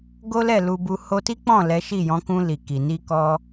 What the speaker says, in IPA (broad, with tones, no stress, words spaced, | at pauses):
ɡo˦lɛ˦˨lu˧bu˧ ho˧ti˦k͡pɔ̃˦˨ lɛ˨˦ʃi˦˨jɔ̃˨˦kũ˧ li˨ki˨ ni˧kɔ˧